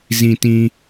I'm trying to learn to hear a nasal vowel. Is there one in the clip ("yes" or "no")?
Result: yes